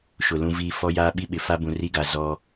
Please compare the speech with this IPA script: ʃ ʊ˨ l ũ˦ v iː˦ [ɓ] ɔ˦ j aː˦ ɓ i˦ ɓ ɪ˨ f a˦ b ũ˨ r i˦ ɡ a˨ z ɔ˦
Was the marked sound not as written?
yes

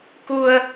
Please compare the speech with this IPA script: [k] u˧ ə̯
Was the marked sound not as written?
no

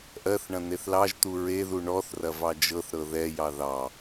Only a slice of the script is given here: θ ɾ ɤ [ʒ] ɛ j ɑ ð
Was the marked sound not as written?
yes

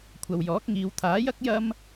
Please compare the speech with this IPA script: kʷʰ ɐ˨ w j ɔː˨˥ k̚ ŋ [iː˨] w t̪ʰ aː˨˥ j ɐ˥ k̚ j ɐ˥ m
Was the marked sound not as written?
yes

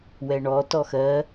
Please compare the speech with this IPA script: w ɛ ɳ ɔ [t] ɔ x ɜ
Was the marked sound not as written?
no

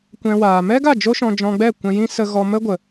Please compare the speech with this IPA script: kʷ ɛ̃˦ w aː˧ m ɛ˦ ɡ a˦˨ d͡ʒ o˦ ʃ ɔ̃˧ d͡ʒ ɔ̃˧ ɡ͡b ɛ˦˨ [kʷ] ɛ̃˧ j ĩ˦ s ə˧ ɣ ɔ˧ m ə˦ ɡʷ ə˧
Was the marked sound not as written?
no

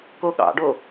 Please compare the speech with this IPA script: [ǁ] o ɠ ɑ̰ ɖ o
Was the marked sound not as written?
yes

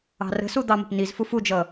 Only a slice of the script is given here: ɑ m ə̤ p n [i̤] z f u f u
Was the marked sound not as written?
yes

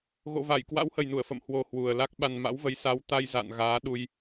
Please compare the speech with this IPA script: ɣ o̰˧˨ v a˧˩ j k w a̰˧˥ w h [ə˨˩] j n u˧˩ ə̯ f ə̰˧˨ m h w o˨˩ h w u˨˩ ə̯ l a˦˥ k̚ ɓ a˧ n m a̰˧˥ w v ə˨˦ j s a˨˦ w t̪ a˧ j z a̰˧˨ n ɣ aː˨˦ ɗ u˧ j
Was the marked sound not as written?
no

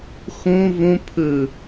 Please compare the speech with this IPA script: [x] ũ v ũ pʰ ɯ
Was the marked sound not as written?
no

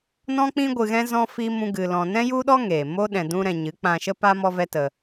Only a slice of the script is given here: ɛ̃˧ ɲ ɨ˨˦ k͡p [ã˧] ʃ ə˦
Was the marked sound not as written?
no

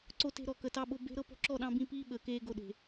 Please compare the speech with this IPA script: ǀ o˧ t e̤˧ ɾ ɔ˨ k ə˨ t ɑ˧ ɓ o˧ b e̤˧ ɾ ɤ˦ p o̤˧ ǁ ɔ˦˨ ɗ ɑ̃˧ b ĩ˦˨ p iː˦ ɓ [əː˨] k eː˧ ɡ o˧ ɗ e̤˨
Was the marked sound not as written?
no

